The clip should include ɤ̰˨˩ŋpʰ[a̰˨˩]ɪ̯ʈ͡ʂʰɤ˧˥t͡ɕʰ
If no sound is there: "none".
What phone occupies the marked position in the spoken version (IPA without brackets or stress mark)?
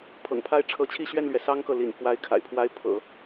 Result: a˥˩